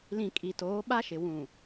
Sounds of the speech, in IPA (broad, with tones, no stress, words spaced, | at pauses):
lĩ˨ kʼi˨toː˨˦ ɓa˦ʃɪ˨ wũ˨